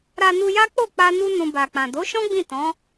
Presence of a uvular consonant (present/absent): absent